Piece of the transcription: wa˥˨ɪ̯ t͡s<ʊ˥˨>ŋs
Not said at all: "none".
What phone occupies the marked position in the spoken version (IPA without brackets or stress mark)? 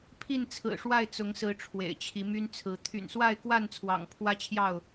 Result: ʊ˨˦